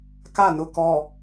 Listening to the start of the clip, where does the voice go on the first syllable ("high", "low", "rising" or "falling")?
falling